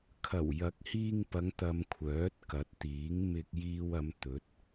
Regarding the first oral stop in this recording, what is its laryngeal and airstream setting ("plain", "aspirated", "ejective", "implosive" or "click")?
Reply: aspirated